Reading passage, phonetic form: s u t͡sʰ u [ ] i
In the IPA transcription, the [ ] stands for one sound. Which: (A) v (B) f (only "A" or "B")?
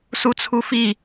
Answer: B